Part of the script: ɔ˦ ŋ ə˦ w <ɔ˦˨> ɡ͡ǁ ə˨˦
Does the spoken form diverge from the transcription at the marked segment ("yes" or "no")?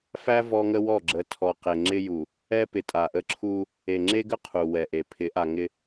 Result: no